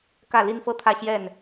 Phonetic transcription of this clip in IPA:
k ä˥˨ l i˦ n f ɤ˥˨ t̪ʰ ä˥˨ ɕ j ɛ˥˨ n

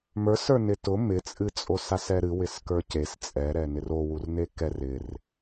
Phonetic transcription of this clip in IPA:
m ə˞ s ə˞ n ɪ t ʊ m ɪ t͡sʼ ɨ t͡sʼ o s a s ɛ ɾ ɨ w ɪ s k ə˞ c e s t͡sʼ ɛ ɾ ɛ n ɪ r o w u r n e k ɛ r ɪ r

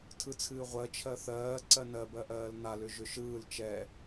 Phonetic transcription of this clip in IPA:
tʰ ɯ t͡sʰ ɨː ʁʷ ɜ t͡ʃʰ ɜ θ ɜː ǀ ɜ n ɜ b ɜ ʔ ɜː l n a l ʏ ʒ ʏ ʃ ɯː l t͡ʃ ɛ

